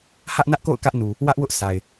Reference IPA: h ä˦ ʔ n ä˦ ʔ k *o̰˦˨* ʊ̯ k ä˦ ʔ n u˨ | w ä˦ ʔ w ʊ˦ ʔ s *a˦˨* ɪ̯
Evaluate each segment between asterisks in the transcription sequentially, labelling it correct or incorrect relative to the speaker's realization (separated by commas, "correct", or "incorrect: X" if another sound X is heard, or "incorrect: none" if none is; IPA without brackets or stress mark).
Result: correct, incorrect: a˨